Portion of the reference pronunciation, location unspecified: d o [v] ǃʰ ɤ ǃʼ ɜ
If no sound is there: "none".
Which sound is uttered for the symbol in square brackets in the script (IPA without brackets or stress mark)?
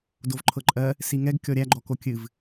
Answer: v